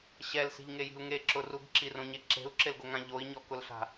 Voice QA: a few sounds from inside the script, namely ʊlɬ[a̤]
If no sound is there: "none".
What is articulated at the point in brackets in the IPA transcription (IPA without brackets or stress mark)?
a̤